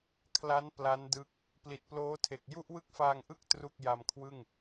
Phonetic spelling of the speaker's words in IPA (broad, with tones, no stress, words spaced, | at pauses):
kʰla˦˥n pla˦˥ndɯ˦˥k̚ | pli˨˩t̚ploː˦˥tʰe˨˩k̚ ju˥˩ʔwɯ˥˩k̚faː˧ŋʔɯ˥˩k̚ tru˥˩k̚ ja˧mkʰwɯ˥˩ŋ